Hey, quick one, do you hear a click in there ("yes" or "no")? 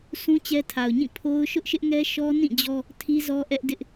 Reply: no